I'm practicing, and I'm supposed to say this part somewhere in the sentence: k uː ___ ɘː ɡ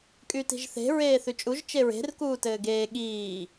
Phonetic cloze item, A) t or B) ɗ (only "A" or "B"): A